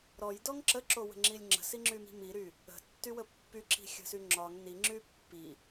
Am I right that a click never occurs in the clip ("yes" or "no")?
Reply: no